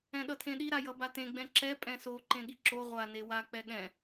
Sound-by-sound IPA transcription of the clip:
ɛ̃ ɗ ʌ tʰ ẽ ɗ i ɾ a j ʌ b a t ẽ ɡ͡b ɛ̃ ǁ ɛ pʼ ɛ̃ s o ǃ ẽ ɠ i ǁ o ʁʷ a n e w a k͡p ɛ ɠ ɛ̃

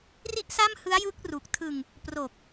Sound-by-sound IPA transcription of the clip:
r i˥˩ ʔ s a˥˩ m h ɯ˦˥ a̯ j ɯ˦˥ k̚ r u˨˩ k̚ tʰ ɯ˧ ŋ | p r o˨˩ k̚

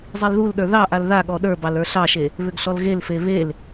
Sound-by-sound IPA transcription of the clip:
zˤ i l ð u l ɗ ə˞ ð ɑ ʔ a l ð a ɠ ɔ ɗ ə˞ b ɑ l ə˞ ɬ ɑ ʃ e | β ʏ ɡ ɬ ɔ l ɣ e l f e β e l

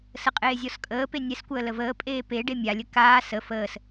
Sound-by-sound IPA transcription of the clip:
s ə qʼ eː zʲ ɔ s kʼ əː p e nʲ ɛ s kʷ əː l ə v əː pʼ eː p e ɖ e mʲ a lʲ ə k aː s ə f əː s

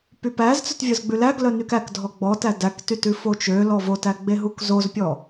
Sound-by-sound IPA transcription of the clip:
p y p æ z t͡s œ t vʲ œ z ɡ͡b ʉ l æ ɡ l œ n y k æ k dʱ ɔ ɡ͡b ɔ t æ d æ k t y t ʉ f o t͡ʃ ø l ɔ v o t æ ɡ͡b e ɦ u k z o z pʲ ɔ

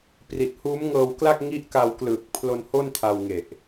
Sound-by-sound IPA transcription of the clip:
p r i˨˩ t̚ h uː˦˥ m ŋ ɤː˧ w k l a˥˩ k̚ ŋ i˦˥ ʔ k a˧ w k l ɯː˨˩ k̚ pʰ l o˧ n h o˥˩ n tʰ a˧ w ŋ e˨˩ ʔ

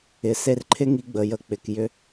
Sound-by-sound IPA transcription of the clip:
ɪ˨ s e˧ r ǃʰ ɪ˦ ŋ i˧ ɡ͡b ə˨ j ə˨ k͡p ɪ˨ k j ʏ˦

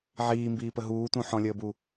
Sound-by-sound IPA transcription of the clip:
ʕ iː m b iː p ə ɦ uː t ũ ħ ɔ̃ lʲ əː b u

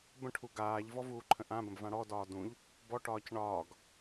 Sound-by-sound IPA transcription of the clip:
b ə̃ ʈʰ u ɡ aː ʎ v ɔ v uː ǃʰ ə̃ ʔ ã b ə̃ b v ã ɽ ɔ d ɒː d ũ ʎ | b ɔ ʈ ɒː c ɳ ɒː ɡ

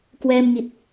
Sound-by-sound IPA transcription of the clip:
k w ɛː˧ m ŋ i˨˩ t̚

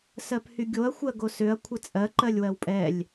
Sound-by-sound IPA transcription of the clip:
s ɜ p h y ɡʲ o ɐ̯ xʷ ɜ ɡ o s ø ɐ̯ kʷʰ ɘ t͡sʼ ɜ ǃ ɜ lʲ w ɜ w pʼ ɛ lʲ

